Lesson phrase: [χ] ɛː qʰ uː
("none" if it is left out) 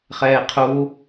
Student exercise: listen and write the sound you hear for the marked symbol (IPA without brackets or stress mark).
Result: χ